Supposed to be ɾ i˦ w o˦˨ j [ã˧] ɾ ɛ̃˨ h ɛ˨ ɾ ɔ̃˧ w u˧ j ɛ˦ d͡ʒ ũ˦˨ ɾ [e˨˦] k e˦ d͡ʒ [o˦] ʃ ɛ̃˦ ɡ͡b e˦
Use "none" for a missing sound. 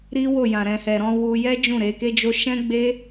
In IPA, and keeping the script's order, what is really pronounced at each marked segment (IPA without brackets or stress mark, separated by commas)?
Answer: ã˨, e˨˦, o˦